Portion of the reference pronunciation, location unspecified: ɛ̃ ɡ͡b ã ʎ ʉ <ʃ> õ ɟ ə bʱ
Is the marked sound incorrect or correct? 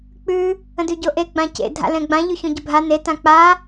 incorrect